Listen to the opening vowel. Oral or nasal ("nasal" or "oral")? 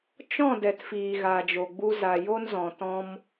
nasal